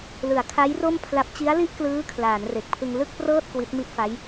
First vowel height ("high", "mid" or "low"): high